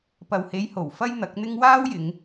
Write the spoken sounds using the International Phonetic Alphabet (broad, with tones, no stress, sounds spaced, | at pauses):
p ɐ˨ w h e˨˧ j h o˨˩ w f ɐ˥ j n̪ ɐ˨˥ k̚ n̪ ɪ˥ ŋ w aː˥ w j ɪ˨˧ ŋ